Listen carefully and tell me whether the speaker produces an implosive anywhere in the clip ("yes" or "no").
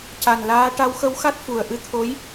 no